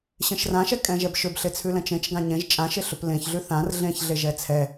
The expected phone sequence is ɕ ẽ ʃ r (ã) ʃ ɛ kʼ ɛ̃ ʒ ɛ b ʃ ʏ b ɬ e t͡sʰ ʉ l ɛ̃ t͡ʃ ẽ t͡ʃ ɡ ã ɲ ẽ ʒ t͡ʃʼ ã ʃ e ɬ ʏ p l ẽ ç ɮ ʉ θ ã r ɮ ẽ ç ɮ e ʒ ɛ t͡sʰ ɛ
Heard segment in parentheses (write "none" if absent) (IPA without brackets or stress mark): ã